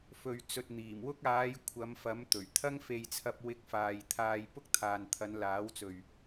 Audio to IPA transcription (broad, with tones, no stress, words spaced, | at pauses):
fɵ˨ɥ t͡sɵ˨t̚n̪iː˨˩mwʊ˥k̚ aː˨˧j kʷʰɐ˨˧mfɐ˨˥m t̪ɵ˨˩ɥ t̪ʰɐ˥ŋfe˧jt͡sʰɐ˧p̚ wɪ˧k̚faː˨j t̪ʰaː˧jpʊ˥k̚ t̪ʰaː˨nt̪ʰɐ˨˧nlaː˨˥wt͡sɵ˨ɥ